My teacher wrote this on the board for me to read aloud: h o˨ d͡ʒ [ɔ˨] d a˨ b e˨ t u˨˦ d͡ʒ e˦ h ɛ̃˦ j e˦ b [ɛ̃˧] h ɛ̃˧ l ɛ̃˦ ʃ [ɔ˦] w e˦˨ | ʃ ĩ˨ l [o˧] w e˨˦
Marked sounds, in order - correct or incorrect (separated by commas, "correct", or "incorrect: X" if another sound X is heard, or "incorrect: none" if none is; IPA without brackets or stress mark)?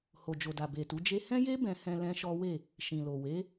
incorrect: o˨, correct, correct, incorrect: o˨